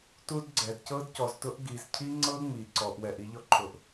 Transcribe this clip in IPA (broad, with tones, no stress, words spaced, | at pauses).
tu˦dɡ͡ǀɛ˨d cɤ˦dcɔ˨ztʊ˦ʔ ɡi˨zcʰi˦ŋ͡ǀɤ˦ ŋ͡mi˨ǀɔ˨ʔwɛ˨ʔ i˦ʎɔ˦ǃʰʊ˨ʔ